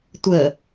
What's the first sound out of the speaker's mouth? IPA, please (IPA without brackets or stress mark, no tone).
tʷ